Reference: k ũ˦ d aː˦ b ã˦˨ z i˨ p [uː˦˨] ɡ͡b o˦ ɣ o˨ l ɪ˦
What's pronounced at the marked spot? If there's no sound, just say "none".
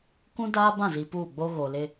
uː˦˨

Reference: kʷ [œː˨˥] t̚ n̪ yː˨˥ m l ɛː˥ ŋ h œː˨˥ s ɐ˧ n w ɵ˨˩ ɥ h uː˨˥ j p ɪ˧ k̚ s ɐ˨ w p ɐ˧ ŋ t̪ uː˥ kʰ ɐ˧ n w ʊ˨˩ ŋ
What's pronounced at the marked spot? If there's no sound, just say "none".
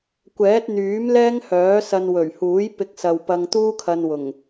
ɛː˨˥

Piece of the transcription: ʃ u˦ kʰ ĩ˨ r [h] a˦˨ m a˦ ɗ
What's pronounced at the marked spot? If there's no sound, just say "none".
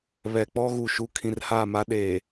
h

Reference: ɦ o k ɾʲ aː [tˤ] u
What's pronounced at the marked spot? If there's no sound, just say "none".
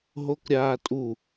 tʼ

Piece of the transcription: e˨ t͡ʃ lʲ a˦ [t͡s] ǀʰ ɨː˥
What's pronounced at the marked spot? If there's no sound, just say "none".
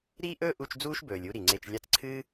t͡s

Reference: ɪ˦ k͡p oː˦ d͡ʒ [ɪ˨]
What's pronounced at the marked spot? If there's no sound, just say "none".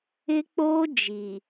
i˨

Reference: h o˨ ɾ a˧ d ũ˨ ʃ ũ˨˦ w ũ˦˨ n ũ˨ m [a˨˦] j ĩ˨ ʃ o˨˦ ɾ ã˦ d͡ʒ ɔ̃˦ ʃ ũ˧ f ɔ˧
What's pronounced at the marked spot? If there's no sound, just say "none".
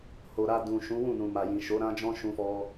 a˨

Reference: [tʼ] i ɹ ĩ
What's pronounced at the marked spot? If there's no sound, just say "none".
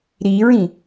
ɾ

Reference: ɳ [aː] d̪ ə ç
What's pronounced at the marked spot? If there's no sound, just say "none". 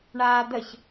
aː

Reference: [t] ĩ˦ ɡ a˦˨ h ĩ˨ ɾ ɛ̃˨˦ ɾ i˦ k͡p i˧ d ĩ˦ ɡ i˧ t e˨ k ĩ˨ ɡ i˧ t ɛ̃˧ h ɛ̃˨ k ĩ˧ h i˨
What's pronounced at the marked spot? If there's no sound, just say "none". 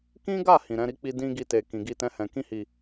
k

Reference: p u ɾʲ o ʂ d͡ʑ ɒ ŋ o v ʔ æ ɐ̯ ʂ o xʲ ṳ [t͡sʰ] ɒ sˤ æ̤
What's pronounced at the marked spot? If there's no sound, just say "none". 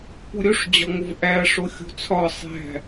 t͡sʰ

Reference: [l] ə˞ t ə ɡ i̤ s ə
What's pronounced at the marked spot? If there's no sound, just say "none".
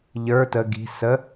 ʎ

